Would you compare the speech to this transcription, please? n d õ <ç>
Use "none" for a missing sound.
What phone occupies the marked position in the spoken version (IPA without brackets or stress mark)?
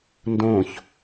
ç